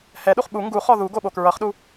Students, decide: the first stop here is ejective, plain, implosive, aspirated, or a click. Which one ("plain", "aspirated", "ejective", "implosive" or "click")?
implosive